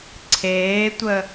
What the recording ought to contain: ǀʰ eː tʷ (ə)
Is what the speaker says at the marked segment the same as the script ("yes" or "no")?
yes